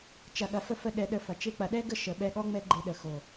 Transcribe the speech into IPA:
t͡ʃ ɐ˨ ɠ ɐ˨ f ə˧ f ə˧ ɗ ɛ˧ ɗ ə˧ f ɐ˨ t͡ʃ e˧ k͡p ɐ˨ ɗ ɛ˦ ɡ ə˦ ʃ ə˨ ɓ ɛ˧ ɠ ɔ˦ ŋ͡m ɛ˦ ɡ͡ǃ e˧ ɗ ə˨ x o˨

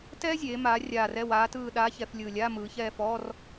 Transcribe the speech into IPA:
t ɛː˥ zʲ eː˩˧ m aː˩˧ rʲ aː˨˩ r ɛ˦˨ w aː˧˥ t ɯː˦˨ ɗ aː˧˥ ç ɛ˩˧ f lʲ ɯː˨˩ lʲ aː˧˥˧ m ɯː˩˧ ç ɛː˦˨ f ɔː˧˥˧ r

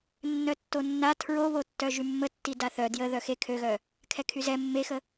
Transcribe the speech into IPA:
nː œ tː o nː a tʰ ɹ o β o tː œ ʒ y mː ə tː i d a θ œ d j ə ð œ x e kʰ ø ɣ œ | kʰ ɛ kʰ y z ɛ mː e x ə

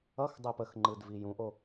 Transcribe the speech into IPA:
ʌ x dˤ ɜ p ə x ŋ͡ǃ ɯ d v i j ũ ʔ o

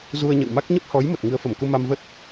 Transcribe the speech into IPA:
z u˧ ə̯ ɲ ə̰˧˨ w m a˦˥ k̚ ɲ ə˦˥ p̚ h ɔ˨˦ j m ə˨˩ t̚ ŋ ɨ˨˦ ə̯ f ə˧˩ m k u˧ m a˧ m v ə˦˥ t̚

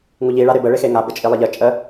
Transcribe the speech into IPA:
ŋ u ʎ i ɭ a ɾ e b ə ɭ e x e ŋ a b ə t͡ʃʼ i lˠ ə ʎ ə t͡ʃʼ ə

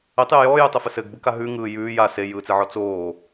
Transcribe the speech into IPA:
ɘ tˤ j ɘ j ɔː j ɯ tˤ ɘ f ɘ s ɘ ɡ b ɯ k a ɦ ʉ ŋ ɯː j ʉː j a s e j ɯː t͡s e ʕ ɔ t͡s oː

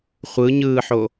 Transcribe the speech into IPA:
χʷ ɯ ɲ ɯː ħ o

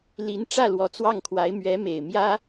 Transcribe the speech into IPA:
l i˧˥ n ʈ͡ʂ ä˥˩ l w ɔ˧˥ t͡s w ɑ˥˩ ŋ kʰ w a˧˥ ɪ̯ m ɥ ɛ˧˥ m e˨˩ ɪ̯ m j ä˥

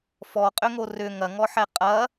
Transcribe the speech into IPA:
f ɔ qʼ ʏ ŋ o r ʏ ŋ ɐ ŋ ɔ ħ ɛ qʼ ɐ

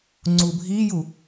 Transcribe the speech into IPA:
ŋ͡ǀ u bʱ i j u

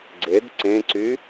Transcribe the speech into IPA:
ɡ͡ǀ e d ǀ ẽ ǀ y

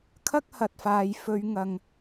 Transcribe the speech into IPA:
kʰ ɐ˥ k̚ h ɐ˨ t̚ f aː˨ j f ɵ˨˧ ɥ ŋ ɐ˨ ŋ

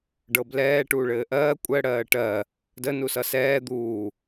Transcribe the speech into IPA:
ɖ ɤ b l ɛː ʈ uː ɭ ɘː ʔ ɜː kʷʼ ɜ ɽ ɜː ʈ ɜ | d ə n u s ʌ s ɛː d̪ uː

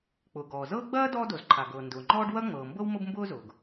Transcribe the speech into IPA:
k͡p ʊː˩ ɡ ɔː˩ z ɤː˥ ɡ͡b ɐː˥ d ɔː˥ d o˩ z ǃʰ a˩ ɡ ɤː˩ n d ʊː˩ ŋ͡ǃ ɔː˥ ɖ w ɐ˥ ŋ͡m ɤː˩ m b ɤ˥ w m ʊ˥ b m b ʊː˥ z ʊː˩ ɡ

